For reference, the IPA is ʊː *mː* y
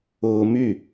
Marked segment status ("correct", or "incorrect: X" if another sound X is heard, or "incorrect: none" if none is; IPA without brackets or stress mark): incorrect: m